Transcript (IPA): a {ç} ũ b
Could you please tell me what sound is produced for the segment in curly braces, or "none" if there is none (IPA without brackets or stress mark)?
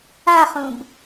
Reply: χ